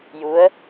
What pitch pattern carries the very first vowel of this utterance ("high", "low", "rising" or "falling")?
rising